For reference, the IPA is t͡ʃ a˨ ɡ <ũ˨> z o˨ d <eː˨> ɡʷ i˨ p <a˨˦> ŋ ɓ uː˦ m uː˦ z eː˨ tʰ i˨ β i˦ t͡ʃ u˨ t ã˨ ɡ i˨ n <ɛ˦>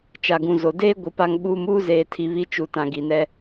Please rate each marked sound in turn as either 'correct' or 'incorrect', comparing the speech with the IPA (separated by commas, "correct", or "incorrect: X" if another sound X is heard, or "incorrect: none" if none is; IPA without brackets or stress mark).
correct, incorrect: eː˦, incorrect: a˦, correct